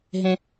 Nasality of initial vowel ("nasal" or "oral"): nasal